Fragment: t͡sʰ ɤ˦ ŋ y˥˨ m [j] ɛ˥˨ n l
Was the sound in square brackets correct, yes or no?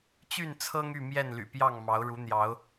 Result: yes